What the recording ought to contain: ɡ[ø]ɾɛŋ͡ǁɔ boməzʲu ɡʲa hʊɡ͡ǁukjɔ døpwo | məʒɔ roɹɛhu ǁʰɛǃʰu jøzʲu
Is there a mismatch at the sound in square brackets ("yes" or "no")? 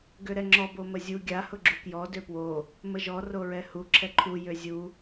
no